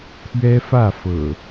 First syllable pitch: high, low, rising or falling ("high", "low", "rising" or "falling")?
high